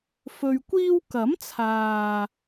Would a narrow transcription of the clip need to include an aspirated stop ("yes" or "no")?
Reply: yes